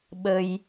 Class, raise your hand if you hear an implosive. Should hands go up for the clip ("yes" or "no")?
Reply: yes